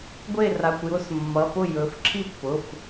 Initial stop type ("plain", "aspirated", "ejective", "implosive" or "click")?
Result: plain